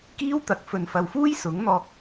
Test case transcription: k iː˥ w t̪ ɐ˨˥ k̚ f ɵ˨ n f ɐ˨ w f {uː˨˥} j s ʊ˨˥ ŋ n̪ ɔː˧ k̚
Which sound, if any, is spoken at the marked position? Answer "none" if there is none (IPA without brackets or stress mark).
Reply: uː˥